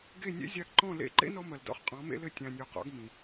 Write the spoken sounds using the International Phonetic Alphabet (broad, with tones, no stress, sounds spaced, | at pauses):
ɡ e˦˨ nʲ ḛ˦ zʲ a˧ ɡ ǃ ɔ̃˦˨ l ḛ˦˨ ǃ ḛ˦ n ɔ˧ m ɐ˨ l d ɔ̰˨ χ qʼ ɔ̃˨˦ m ḛ˦ l ɘ˦˨ tʲ ã˨ nʲ o˨ q ɔ̰˨˦ ɡ m ĩ˨